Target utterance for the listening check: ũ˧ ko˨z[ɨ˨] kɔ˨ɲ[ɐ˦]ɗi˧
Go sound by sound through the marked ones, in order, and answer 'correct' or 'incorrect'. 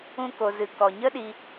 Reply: correct, incorrect: ə˦

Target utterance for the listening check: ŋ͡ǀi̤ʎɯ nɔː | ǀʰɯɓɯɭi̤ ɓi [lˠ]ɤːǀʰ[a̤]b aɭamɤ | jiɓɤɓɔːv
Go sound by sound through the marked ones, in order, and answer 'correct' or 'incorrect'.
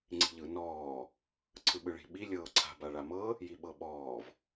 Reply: incorrect: lʲ, correct

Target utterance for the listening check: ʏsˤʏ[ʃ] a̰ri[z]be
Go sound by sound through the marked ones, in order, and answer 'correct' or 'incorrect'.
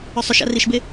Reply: correct, incorrect: ʃ

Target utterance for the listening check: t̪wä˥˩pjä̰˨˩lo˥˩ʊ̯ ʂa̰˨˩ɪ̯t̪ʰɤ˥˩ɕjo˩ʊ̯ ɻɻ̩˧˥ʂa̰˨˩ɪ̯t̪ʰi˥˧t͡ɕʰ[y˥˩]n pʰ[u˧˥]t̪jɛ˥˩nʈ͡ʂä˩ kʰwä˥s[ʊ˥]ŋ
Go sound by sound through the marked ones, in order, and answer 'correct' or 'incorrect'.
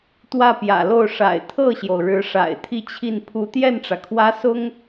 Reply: incorrect: i˥˩, correct, correct

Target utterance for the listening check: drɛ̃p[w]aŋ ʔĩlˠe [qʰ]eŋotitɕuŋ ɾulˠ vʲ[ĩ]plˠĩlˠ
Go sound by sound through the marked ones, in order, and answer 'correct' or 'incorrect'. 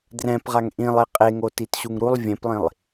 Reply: incorrect: ʁ, incorrect: qʼ, incorrect: ẽ

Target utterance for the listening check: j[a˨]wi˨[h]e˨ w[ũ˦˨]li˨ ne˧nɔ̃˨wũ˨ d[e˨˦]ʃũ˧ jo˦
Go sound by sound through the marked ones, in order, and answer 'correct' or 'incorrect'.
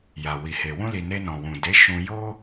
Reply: correct, correct, incorrect: ũ˧, correct

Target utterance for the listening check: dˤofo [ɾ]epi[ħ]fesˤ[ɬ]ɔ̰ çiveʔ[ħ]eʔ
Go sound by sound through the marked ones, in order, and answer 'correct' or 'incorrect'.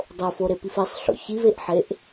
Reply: correct, incorrect: none, correct, correct

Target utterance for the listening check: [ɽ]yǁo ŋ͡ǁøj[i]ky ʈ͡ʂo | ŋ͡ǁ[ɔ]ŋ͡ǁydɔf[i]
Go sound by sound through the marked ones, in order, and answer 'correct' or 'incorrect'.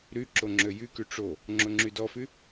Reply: incorrect: ɾ, incorrect: y, incorrect: o, incorrect: y

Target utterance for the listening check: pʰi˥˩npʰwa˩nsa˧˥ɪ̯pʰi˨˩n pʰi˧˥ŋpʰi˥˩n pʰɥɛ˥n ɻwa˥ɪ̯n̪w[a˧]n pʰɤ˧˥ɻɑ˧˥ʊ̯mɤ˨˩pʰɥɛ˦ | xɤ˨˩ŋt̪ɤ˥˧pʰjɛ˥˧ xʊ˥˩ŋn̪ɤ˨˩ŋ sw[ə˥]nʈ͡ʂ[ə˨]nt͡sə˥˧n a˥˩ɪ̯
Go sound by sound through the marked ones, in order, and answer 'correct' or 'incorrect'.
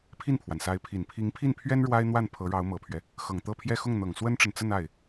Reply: incorrect: a˥˩, correct, correct

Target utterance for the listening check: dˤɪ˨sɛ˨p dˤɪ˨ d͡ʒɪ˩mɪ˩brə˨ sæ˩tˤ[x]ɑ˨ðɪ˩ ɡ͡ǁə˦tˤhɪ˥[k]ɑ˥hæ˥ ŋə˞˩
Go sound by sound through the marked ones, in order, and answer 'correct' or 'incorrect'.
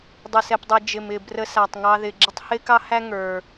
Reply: incorrect: ŋ, correct

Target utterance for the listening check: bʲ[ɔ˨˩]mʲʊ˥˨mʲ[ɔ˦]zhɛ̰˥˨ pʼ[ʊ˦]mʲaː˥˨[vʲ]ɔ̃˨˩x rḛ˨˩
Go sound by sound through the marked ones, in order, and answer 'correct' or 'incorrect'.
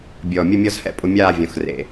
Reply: correct, correct, correct, correct

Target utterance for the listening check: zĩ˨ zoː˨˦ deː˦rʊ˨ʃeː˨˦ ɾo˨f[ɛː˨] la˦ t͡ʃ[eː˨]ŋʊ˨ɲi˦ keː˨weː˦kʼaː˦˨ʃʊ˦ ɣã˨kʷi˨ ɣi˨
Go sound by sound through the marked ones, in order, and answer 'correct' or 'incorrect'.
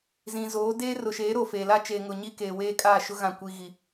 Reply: incorrect: eː˨, correct

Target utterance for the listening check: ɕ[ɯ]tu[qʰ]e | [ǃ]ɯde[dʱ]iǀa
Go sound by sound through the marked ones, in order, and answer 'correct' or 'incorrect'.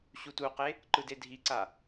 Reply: incorrect: u, incorrect: q, correct, correct

